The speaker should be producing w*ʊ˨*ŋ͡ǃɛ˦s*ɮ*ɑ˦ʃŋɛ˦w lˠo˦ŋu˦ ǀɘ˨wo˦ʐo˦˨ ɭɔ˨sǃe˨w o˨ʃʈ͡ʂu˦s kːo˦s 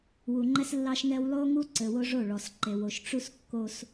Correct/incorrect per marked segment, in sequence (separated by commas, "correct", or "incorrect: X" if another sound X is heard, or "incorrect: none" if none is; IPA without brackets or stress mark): incorrect: u˨, incorrect: lː